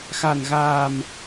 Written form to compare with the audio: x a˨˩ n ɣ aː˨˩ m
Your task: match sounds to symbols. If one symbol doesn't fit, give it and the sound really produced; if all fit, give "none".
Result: none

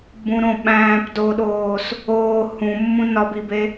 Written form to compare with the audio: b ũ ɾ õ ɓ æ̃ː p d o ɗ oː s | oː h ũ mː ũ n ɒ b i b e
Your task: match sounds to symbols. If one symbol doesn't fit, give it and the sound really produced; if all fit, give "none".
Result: none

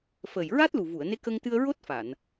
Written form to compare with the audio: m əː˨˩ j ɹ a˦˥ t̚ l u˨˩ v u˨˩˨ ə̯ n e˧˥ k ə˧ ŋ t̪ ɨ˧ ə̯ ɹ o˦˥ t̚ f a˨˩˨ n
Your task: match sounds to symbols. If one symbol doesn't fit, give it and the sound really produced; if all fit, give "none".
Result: m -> f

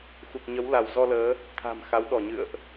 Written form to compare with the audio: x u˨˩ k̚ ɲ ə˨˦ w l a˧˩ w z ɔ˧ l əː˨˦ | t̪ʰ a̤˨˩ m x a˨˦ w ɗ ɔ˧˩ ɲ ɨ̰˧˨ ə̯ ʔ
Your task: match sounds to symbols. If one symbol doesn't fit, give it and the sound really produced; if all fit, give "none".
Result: none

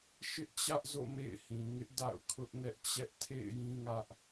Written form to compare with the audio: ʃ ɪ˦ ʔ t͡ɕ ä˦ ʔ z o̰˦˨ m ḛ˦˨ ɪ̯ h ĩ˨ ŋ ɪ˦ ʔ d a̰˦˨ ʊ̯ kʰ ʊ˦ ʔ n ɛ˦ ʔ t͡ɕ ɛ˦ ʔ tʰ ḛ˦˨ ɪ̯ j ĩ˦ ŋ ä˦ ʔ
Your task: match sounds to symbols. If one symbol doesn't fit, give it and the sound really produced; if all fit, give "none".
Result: none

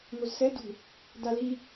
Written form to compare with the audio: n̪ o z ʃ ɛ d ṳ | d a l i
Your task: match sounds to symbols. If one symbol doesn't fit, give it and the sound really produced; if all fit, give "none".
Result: ʃ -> s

